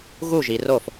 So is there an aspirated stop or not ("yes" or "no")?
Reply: no